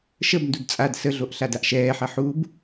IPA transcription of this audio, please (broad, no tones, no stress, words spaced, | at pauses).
ʃəbndud t͡sʼad səɮoʔ ɬadaʔʃɛːħɐ ħub